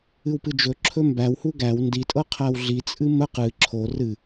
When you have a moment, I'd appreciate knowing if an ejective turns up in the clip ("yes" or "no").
yes